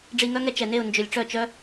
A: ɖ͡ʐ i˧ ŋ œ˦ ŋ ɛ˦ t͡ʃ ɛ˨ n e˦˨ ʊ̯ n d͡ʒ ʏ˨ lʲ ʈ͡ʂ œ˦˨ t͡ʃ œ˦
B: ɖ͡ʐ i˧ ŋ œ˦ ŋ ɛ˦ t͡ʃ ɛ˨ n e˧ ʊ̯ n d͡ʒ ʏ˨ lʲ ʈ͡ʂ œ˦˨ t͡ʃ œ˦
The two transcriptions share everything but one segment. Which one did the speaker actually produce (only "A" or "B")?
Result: A